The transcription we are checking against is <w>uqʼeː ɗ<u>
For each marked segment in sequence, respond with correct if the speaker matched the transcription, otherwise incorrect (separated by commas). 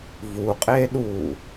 incorrect, incorrect